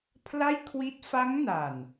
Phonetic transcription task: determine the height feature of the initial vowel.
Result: low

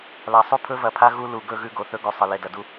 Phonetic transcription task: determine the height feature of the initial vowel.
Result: low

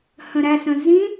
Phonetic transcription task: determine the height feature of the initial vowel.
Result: mid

